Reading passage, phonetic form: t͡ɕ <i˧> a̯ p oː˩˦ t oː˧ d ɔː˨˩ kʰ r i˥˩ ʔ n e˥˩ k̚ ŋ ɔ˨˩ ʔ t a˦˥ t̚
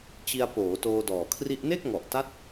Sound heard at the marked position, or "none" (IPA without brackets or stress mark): i˧